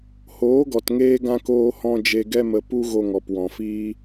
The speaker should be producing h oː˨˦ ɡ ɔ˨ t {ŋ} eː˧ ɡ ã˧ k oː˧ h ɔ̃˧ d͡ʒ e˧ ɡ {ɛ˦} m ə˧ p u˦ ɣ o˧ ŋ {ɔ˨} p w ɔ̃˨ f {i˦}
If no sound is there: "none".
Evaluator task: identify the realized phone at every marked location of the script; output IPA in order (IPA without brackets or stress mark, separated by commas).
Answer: ŋ, ɛ˦, ɔ˨, iː˦